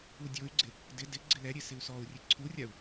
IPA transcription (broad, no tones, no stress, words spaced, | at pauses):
udʲoy̯ɡ͡ǀɪ | dɪ dɪ ɡ͡ǀɪlɛɾʲe sɪu̯sɔu̯rʲe ǀʰurʲau̯